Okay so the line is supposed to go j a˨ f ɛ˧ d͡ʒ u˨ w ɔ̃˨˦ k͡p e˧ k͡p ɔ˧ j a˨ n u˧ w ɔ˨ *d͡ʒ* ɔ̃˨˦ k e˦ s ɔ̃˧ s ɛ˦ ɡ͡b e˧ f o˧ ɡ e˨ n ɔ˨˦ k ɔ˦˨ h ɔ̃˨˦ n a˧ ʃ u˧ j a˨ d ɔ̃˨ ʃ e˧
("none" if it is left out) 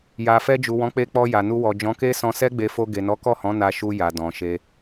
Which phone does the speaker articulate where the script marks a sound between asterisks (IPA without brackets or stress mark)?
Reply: d͡ʒ